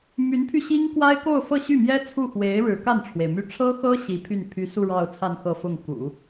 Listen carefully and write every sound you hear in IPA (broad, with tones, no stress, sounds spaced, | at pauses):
m y˧˥ n pʰ y˧ ɕ i˥ ŋ k w a˥ ɪ̯ k o˥˧ ʊ̯ f ɤ˥˧ ɕ y˥˩ m j ɛ˥ t͡sʰ u˥˩ x w e˧˥ ɪ̯ ɻ ɻ̩˧˥ k a˥˩ n ʈ͡ʂʰ w e˩ ɪ̯ m y˥˩ ʈ͡ʂʰ ɤ˥ x ɤ˥ ɕ i˧˥ pʰ y˥˩ n pʰ y˧˥ s u˥˧ ɻ ɑ˥˧ ʊ̯ t͡sʰ a˥˧ n x ɤ˥˧ f ʊ˥˩ ŋ k ṵ˨˩˦